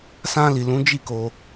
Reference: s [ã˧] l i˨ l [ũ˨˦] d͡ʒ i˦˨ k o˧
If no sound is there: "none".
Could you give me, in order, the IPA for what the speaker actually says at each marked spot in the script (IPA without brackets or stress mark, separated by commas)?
ã˧, ũ˨˦